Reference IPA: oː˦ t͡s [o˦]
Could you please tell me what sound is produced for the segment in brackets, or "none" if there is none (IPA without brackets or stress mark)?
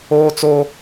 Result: o˦